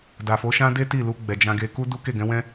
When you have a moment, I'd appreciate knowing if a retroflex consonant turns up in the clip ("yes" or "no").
no